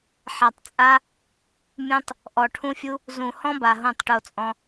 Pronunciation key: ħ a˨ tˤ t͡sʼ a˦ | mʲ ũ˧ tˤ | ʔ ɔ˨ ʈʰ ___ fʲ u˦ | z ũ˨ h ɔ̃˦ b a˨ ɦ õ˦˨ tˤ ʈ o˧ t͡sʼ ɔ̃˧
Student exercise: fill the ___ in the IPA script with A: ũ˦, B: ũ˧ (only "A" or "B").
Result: A